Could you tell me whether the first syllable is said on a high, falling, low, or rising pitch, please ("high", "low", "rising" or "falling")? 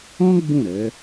high